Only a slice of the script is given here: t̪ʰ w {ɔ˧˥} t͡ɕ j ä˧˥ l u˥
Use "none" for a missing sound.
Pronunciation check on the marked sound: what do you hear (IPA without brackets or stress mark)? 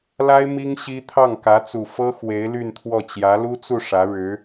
ɔ˥˩